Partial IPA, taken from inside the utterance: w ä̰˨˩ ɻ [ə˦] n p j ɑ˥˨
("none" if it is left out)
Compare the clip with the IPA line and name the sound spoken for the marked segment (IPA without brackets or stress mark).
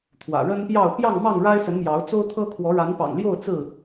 ə˦